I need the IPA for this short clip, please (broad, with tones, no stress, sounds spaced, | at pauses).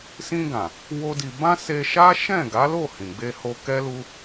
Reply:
s ĩ˧ ɡ ã˨ | w o˦ d i˧ b ã˦ s e˧ ʃ a˦ ʃ ɛ̃˦˨ ɡ a˨˦ l o˦˨ h ĩ˨ ɡ͡b e˧ h o˧ k ɛ˦ l u˦